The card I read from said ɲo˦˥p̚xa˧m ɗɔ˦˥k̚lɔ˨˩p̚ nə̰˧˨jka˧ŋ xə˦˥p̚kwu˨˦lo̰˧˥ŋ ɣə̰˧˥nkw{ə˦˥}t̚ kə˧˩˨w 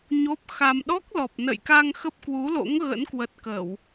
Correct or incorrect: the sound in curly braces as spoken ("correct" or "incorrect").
incorrect